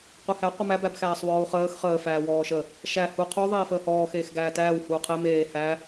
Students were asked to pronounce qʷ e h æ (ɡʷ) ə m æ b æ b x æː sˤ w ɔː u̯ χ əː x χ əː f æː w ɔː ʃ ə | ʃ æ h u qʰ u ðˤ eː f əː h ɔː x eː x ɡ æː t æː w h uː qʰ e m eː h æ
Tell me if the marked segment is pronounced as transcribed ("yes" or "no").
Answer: no